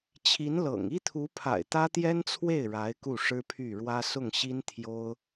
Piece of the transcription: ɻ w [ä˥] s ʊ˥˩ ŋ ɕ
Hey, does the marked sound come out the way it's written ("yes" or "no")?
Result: yes